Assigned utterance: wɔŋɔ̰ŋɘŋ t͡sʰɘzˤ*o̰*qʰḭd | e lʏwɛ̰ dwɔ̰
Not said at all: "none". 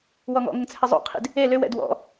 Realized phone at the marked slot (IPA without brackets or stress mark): o̰